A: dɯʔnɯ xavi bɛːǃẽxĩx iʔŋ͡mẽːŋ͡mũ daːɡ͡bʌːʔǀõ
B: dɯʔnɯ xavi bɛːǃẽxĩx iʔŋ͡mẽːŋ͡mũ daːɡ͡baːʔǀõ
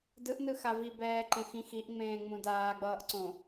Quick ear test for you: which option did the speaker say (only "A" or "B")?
A